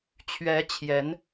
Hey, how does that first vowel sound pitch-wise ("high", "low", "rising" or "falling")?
rising